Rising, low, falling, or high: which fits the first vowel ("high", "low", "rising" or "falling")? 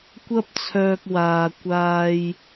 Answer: high